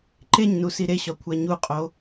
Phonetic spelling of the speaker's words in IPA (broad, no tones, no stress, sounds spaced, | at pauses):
ǃ e ɲ n u s i ɾ e ɕ ɒ kʷʰ æ ɲ u qʼ o